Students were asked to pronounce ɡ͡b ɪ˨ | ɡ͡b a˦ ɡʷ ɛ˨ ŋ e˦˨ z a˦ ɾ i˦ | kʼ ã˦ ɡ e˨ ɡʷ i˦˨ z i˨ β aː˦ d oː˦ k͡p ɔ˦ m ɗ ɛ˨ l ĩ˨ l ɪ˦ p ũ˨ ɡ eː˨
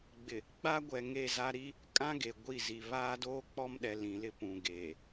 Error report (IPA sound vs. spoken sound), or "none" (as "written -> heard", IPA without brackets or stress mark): none